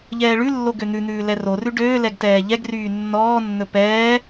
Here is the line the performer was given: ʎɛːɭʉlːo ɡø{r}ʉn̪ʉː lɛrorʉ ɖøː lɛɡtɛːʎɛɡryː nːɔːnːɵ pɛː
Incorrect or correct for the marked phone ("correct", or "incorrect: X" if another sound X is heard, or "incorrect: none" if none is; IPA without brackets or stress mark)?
incorrect: n̪